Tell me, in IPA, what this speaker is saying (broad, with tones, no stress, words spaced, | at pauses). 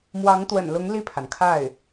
mwɑ˧˥ŋt̪wə̰˨˩nlʊ˧˥ŋ li˥˩pʰa˩nkʰa˥˩ɪ̯